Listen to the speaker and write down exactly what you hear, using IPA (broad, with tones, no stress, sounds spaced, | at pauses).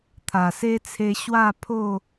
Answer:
t̪ʰ a˨˩ s e˦ t͡sʰ e˧ ɕ w a˥˧ pʰ o˥˧